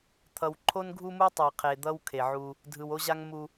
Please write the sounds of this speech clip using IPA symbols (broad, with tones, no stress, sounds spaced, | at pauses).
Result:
t̪ʰ ʌ˨ w ǃʰ o˦ n ɡʱ u˦ m u˦ tˤ i˨ qʰ e˨ d̪ ʌ˦ w kʰ e˨ ʕ u˦ | dʱ ɯ˨ w o˦ ʑ a˦ ŋ m u˦